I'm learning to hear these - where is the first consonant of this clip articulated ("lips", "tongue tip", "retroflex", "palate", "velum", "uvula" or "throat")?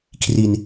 velum